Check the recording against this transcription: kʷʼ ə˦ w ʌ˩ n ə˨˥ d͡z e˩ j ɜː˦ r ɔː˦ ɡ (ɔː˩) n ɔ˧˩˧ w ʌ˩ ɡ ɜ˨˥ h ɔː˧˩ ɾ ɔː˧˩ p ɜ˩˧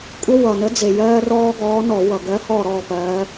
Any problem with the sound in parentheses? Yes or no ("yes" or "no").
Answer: yes